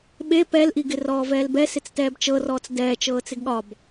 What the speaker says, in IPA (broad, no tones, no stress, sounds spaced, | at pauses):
ɓ e p ɛ l ʔ i ɡ ɪ r ɔː v ɛː l b ɛ s ɪ t͡s t ɛː b t͡ʃ ɤ r ɔː t͡s d ɛː t͡ʃ ɤː t͡s ɪ ɡ ɠ ɒ b